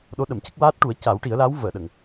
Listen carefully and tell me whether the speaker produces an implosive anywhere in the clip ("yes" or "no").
yes